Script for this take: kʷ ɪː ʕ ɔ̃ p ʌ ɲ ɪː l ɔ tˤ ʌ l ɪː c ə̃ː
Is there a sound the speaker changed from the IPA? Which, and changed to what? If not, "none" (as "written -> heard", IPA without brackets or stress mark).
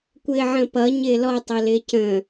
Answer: ɔ̃ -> ə̃